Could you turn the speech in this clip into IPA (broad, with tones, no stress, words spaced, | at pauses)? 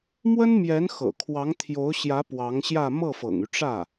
mwə˥nmjɛ˧˥n xɤ̰˨˩ kʰwɑ˧˥ŋt̪ʰjo˧˥ʊ̯ɕjä˧˥ pwɑ˧˥ŋɕjä˥˧ mɤ˥˩fɤ̰˨˩ŋy˦ʈ͡ʂä˥˩